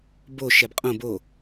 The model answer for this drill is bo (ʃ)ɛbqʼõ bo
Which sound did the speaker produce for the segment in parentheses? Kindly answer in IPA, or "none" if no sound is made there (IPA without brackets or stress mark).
ʃ